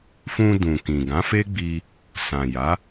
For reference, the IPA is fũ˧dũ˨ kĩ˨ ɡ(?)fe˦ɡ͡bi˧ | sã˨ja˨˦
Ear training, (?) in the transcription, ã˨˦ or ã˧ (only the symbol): ã˨˦